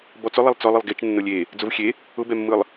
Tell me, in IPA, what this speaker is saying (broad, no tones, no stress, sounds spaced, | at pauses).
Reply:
b ɔ t͡s ʊ lˠ ɛ lˠ t͡s ɔ lˠ ɯ lˠ ɡ e t͡ʃ nː ʊ lʲ e | d͡z ʊ v xʲ e | ʊ b ɛ mː ɯ lˠ